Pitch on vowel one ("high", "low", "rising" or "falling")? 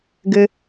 low